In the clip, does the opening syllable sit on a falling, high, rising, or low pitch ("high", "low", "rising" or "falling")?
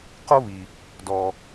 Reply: high